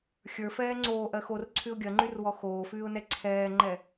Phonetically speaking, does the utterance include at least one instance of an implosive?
no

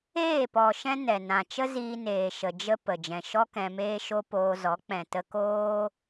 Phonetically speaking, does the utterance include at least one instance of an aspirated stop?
no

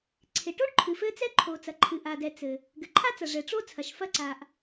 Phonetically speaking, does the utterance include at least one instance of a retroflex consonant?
yes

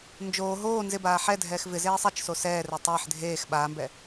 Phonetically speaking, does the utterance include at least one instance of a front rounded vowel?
no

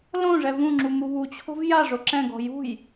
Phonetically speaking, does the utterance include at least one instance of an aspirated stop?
yes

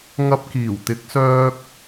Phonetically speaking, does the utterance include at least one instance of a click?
no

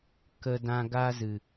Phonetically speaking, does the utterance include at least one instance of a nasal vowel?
yes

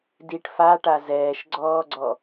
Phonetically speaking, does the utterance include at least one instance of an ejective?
no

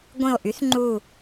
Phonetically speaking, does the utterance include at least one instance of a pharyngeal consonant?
no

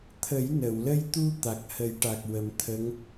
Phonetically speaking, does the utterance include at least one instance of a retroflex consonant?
yes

